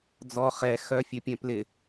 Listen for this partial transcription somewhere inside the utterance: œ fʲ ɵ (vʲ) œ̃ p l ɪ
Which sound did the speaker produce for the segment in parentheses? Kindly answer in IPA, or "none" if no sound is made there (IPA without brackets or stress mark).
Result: pʲ